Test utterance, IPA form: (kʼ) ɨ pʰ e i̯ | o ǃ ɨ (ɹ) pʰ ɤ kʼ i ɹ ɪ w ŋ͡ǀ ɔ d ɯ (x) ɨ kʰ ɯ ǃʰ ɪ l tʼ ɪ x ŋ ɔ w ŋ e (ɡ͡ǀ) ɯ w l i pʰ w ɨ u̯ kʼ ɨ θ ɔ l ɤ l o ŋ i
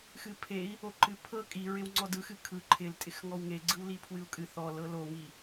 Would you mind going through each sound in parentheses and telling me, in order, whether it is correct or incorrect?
incorrect: x, incorrect: none, correct, correct

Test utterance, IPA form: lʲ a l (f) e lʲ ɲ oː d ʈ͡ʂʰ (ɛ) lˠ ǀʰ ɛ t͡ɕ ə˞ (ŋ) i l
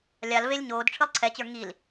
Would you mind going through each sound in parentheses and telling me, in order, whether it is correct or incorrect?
incorrect: v, incorrect: ɨ, correct

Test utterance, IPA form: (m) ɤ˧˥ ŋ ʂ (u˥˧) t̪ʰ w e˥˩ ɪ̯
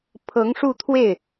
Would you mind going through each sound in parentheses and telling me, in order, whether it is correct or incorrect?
incorrect: pʰ, correct

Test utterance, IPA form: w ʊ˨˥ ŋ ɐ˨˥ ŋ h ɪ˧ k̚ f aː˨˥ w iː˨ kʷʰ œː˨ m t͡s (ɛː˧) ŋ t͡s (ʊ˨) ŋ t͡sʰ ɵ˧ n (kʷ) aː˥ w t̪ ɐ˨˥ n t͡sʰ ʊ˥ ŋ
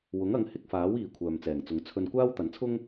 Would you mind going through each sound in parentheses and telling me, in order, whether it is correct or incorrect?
incorrect: ɛː˨˩, incorrect: ʊ˨˧, correct

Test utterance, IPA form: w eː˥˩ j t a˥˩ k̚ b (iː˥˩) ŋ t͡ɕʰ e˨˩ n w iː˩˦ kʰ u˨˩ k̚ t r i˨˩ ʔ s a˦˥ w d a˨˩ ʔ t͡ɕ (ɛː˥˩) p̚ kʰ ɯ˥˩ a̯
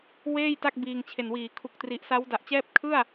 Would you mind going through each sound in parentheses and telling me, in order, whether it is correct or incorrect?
incorrect: iː˧, correct

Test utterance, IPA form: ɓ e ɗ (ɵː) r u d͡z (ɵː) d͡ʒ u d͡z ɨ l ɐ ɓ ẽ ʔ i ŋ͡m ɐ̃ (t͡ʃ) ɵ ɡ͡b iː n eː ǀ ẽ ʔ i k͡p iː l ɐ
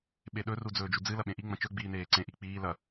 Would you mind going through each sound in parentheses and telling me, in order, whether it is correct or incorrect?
incorrect: ɵ, correct, correct

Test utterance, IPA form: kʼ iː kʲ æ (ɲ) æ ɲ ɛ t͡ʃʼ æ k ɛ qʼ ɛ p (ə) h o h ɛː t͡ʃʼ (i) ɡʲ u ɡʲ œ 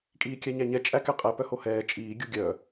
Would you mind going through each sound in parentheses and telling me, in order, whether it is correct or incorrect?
correct, incorrect: œ, incorrect: iː

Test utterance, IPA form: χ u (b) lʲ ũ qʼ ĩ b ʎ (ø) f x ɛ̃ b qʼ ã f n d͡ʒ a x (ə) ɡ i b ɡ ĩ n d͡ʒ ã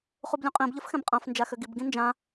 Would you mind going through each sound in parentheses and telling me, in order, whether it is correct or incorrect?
correct, incorrect: ə, incorrect: ø

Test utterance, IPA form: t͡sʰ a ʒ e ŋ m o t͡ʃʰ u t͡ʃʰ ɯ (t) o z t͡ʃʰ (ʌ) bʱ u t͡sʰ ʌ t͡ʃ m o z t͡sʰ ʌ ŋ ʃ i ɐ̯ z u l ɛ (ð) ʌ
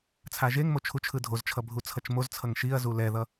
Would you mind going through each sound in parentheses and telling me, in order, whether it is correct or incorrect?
incorrect: dʱ, correct, correct

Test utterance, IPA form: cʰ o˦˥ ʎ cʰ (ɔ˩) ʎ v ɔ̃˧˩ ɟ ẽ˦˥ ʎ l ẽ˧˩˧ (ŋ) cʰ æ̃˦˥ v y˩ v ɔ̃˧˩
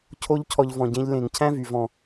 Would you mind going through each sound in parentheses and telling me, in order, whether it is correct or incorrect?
incorrect: ɔ˧, correct

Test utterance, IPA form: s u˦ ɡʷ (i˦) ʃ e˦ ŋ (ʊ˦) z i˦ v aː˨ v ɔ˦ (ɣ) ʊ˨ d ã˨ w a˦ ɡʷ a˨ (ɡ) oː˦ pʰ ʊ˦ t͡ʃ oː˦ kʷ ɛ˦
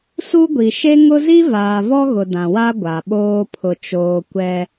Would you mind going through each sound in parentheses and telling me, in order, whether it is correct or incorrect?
incorrect: i˨, correct, correct, incorrect: ɓ

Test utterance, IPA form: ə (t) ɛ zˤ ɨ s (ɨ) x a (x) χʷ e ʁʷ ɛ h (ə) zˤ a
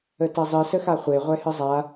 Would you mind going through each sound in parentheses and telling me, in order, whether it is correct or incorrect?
correct, incorrect: ə, incorrect: none, incorrect: ɨ

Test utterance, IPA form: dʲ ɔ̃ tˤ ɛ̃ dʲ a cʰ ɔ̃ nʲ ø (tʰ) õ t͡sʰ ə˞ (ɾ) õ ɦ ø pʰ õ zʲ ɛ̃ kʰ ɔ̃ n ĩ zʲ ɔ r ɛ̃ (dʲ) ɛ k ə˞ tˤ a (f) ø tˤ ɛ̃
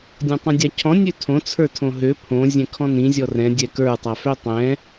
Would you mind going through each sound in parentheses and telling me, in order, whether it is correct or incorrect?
correct, incorrect: tʰ, correct, correct

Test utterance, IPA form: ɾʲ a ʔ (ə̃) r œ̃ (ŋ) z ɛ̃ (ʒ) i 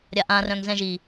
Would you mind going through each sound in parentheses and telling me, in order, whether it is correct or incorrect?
incorrect: ã, correct, correct

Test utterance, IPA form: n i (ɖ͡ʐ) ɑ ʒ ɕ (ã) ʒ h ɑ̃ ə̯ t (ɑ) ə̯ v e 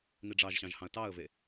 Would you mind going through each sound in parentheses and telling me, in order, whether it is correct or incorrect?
correct, incorrect: ɑ̃, correct

